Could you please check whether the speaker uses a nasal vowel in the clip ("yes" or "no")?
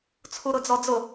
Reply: no